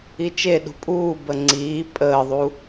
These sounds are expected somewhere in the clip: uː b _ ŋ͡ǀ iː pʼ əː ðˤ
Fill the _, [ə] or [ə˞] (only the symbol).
ə